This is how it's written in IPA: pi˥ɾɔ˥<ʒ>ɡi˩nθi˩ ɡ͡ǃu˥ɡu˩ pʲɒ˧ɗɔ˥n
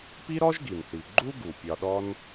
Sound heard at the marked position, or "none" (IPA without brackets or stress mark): ʒ